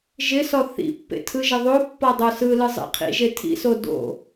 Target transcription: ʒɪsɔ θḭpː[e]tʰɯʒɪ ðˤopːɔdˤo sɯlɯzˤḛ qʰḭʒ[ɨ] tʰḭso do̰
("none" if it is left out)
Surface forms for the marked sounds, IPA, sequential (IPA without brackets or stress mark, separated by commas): ḛ, e